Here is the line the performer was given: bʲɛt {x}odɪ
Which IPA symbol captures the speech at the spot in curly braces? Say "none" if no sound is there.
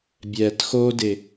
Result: x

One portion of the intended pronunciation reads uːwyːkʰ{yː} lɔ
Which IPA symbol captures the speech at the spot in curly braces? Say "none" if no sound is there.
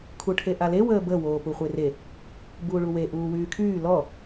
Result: yː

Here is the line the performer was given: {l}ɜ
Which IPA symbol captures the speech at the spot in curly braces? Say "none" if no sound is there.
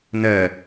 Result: n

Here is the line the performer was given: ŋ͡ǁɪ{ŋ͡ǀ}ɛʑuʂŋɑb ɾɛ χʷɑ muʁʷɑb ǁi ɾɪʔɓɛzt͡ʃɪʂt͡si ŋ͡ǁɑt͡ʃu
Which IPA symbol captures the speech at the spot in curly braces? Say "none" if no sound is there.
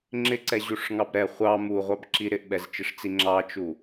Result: ǀ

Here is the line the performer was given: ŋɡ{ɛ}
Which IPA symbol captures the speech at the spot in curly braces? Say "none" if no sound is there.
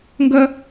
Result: ə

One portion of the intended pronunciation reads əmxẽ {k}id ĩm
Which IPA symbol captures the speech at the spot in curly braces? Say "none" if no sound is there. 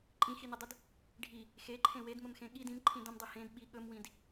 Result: ɠ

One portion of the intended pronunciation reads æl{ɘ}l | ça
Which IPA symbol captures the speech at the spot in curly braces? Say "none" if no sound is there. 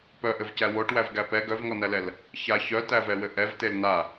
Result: ɛ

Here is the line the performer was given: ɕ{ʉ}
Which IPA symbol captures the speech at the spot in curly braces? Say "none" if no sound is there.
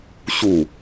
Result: u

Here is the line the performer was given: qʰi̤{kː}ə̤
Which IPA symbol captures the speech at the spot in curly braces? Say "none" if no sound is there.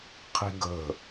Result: ɡ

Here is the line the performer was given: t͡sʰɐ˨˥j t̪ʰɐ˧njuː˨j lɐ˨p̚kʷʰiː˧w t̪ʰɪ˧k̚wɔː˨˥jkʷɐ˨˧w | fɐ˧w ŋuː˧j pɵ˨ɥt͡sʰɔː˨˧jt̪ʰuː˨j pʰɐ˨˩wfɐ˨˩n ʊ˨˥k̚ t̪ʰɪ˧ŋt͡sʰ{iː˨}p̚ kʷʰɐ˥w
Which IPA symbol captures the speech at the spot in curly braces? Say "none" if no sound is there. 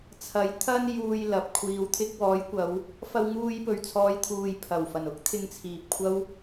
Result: iː˨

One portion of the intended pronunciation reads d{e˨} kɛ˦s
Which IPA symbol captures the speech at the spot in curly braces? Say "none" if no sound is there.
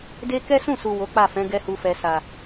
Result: e˦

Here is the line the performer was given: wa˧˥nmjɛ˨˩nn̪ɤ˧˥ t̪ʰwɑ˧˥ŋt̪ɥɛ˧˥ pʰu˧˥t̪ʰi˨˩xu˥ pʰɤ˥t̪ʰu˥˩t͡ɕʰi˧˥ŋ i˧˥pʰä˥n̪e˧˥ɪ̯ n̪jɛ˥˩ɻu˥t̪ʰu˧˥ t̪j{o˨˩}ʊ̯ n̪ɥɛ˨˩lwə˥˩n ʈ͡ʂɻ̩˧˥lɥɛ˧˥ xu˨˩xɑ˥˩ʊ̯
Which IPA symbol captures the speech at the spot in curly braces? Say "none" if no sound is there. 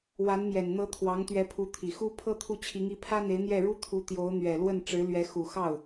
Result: o˧˥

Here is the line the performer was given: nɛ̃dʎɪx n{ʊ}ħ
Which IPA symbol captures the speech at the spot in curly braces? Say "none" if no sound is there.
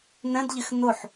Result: ʊ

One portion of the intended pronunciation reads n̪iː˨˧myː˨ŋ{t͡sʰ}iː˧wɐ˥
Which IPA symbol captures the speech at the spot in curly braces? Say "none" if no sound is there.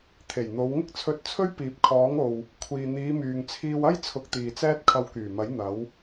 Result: t͡sʰ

